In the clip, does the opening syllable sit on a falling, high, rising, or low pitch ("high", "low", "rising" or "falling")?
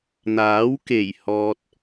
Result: rising